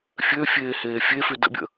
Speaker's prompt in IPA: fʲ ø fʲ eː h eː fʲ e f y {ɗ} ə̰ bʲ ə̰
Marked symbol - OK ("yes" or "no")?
no